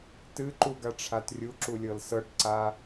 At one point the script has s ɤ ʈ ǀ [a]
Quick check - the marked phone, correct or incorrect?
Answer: correct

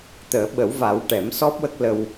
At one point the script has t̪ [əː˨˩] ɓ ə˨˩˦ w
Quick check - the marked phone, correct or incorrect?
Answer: incorrect: əː˨˩˦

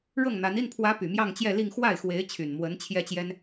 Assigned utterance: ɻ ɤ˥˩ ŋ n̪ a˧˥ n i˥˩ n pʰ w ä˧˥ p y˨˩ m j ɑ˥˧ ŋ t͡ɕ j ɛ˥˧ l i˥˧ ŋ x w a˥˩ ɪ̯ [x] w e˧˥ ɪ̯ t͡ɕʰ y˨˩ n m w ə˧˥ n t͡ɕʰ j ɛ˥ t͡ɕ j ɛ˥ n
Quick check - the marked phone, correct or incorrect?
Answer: correct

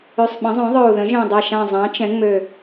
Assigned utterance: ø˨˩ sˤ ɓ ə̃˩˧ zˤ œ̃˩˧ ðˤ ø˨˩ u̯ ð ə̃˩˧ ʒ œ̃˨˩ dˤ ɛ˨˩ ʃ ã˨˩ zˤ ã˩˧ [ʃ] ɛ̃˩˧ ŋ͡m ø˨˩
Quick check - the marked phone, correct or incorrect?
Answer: incorrect: t͡ʃ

